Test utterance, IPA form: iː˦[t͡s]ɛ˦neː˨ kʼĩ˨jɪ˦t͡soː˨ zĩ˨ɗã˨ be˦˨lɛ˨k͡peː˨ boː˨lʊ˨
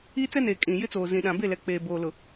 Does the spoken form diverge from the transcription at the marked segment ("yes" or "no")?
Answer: no